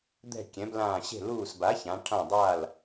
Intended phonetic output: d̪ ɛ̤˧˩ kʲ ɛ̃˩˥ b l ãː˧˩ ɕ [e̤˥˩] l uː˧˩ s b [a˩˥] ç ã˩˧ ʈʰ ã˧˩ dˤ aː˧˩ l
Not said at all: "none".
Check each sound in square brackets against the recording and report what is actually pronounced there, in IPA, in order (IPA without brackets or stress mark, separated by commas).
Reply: e̤˥˩, a˩˥